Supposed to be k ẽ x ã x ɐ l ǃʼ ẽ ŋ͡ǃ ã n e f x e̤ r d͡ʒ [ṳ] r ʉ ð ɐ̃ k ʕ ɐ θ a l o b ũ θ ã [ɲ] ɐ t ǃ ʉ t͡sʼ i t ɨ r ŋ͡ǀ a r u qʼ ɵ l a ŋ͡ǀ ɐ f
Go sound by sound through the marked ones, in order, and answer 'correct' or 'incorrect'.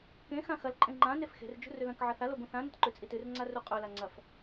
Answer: correct, incorrect

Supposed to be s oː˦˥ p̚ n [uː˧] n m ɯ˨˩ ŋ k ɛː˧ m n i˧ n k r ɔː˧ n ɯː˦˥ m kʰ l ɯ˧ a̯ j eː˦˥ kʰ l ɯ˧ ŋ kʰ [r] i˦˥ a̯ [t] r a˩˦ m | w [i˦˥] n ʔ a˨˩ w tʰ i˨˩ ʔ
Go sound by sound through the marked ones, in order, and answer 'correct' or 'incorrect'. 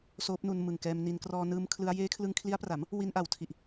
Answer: incorrect, incorrect, incorrect, incorrect

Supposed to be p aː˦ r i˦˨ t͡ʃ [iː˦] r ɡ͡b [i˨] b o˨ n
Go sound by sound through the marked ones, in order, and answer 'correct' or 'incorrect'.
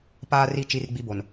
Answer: incorrect, incorrect

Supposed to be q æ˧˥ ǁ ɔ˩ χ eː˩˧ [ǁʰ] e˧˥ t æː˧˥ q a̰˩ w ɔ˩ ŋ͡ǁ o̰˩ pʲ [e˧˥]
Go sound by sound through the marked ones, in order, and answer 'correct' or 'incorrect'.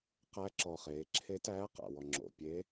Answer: correct, correct

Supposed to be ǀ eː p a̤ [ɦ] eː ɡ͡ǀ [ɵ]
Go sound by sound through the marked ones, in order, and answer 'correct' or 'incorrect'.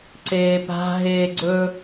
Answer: correct, correct

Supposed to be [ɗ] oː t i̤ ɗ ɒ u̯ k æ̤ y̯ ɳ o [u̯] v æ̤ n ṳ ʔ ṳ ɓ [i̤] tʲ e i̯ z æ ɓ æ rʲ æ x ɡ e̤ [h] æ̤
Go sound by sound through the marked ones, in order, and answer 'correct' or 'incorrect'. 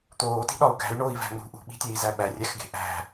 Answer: incorrect, incorrect, correct, incorrect

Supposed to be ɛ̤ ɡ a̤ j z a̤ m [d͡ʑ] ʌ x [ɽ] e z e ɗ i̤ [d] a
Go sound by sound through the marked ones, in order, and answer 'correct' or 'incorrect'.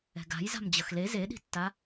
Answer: correct, incorrect, incorrect

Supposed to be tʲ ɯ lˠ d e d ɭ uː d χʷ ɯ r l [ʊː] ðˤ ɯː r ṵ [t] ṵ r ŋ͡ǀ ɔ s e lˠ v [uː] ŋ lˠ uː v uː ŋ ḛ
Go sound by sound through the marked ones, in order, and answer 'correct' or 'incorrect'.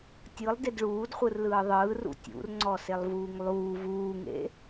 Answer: incorrect, incorrect, correct

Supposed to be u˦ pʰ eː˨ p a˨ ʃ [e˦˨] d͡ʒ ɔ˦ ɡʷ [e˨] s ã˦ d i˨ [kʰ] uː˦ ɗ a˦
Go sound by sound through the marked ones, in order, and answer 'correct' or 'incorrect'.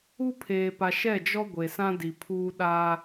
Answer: incorrect, correct, incorrect

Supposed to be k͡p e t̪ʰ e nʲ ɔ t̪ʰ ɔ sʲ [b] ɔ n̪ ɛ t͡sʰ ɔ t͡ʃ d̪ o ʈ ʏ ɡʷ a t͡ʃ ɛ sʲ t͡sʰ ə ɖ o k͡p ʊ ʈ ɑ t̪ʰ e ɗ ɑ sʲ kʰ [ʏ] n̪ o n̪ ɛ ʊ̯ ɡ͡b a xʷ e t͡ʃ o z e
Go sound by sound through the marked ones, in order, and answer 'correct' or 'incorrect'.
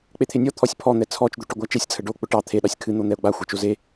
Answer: incorrect, incorrect

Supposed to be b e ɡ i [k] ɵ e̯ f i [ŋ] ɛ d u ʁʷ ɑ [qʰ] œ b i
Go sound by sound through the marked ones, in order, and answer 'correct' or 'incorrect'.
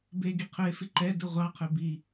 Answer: incorrect, incorrect, correct

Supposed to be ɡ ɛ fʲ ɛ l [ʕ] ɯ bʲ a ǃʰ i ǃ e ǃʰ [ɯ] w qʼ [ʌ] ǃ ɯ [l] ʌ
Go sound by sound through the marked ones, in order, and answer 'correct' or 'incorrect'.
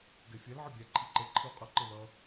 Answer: correct, correct, correct, correct

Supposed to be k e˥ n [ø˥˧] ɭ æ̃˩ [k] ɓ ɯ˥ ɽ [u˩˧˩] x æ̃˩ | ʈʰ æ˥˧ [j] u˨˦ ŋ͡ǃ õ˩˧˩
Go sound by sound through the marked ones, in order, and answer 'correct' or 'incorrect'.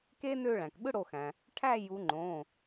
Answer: correct, correct, incorrect, correct

